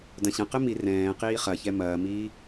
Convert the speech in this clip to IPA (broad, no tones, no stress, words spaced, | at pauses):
dɐ̃ɕɐ̃ qɘmi rɛ̃ː qiːχɐçɛ mɐːmiː